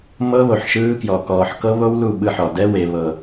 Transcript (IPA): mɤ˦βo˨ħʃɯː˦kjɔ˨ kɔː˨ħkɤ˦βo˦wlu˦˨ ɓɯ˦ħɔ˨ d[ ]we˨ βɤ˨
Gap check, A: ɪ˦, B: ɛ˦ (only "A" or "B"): B